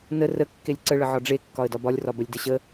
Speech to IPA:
n ə r ə kː e lʲ ǀ ə ɭ ə ʕ ɒ ɖ͡ʐ e kː ɒ ə̯ d ɒ b ɒ lʲ r ɒ b ə lʲ d ə ɕ ə

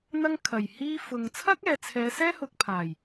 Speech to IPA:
n̪ ɐ˥ ŋ kʰ ɐ˨˩ j h iː˥ f ʊ˨ ŋ t͡sʰ ɐ˥ k̚ ɛː˨ t͡sʰ ɛː˨˧ s ɛː˥ h ʊ˨ k̚ pʰ aː˨˩ j

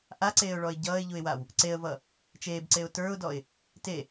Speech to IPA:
ʔ a ǀ eː ʊ̯ ɭ ɔ ɪ̯ ɟ ʌː ɪ̯ ʎ u ɪ̯ w a w | ǀ e ə̯ v ʌ | t͡ʃ eː b ǀ e ʊ̯ t ə˞ ʊ̯ d ɔ ɪ̯ | t e

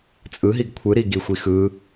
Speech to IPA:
t͡sʼ ɯ ɦ i ɡ kʷʰ ɯ ɾ i ɡ i xʷ i x ɯ

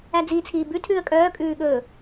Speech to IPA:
æ d͡z iː t͡sʰ iː b ʉ tʰ ʉː ə̯ kʼ œː kʼ ʉː ɠ ɵː

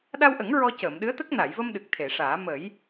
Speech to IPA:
ɗ a˧ w ʔ ə˨˩˦ ŋ ɹ ɔ˧ c əː˨˩˨ m ɗ ɨ˧˥ ə̯ t̪ ə˦˥ k̚ n a˨˩˨ j v ə˧ m ɗ ɨ˨˩ k̚ t̪ʰ e˨˩˨ ʂ aː˨˩˦ m ə˨˩˦ j

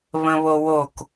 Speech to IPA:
β ə̃ β o w o k

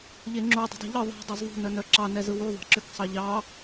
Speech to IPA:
ʎ e ŋ͡ǁ u dˤ ṳ dˤ e̤ ʎ ɯ ðˤ e̤ dˤ œ z ðˤ ṳ n œ n œ ǁ ɑ n ɛ z ɯ w u ðˤ ɑ̤ ǁ ʏ k sˤ ɑ ʎ ɑ

